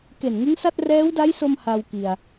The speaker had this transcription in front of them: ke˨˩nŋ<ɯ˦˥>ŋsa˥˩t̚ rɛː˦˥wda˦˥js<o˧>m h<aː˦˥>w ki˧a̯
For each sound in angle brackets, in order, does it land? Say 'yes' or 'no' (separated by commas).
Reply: yes, yes, no